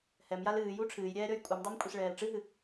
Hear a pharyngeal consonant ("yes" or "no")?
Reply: no